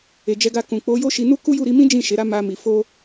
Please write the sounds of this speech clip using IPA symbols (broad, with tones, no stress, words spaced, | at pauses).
e˨d͡ʒɛ˧ɡa˧kũ˨ k͡po˨˦jo˦ʃi˧ nu˦ku˦ju˦˨ ɾi˧mĩ˦ d͡ʒĩ˦˨ ʃe˨˦ɾa˦ ma˧mi˨ fo˧